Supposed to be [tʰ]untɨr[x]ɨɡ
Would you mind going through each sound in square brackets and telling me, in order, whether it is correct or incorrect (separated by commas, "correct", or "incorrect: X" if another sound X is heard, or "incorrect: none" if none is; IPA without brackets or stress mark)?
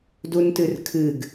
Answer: incorrect: d, incorrect: kʰ